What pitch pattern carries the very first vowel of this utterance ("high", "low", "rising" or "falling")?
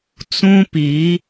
high